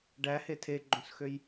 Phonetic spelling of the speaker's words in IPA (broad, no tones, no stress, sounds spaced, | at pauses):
ɖ æ h e tʰ e ɡ͡ǃ õ s x ø j